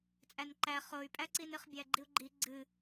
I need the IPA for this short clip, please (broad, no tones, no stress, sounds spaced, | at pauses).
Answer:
t͡sʼ æ n ǃ æ χ o y̯ pʼ æ ǀ i n ɨ χ bʲ æ ɡ͡ǃ i u̯ ɡ͡ǃ i ɡ͡ǀ ɨ